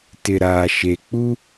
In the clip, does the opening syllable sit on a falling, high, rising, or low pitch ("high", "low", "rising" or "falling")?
low